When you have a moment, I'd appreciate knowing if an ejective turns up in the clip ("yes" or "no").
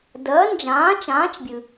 no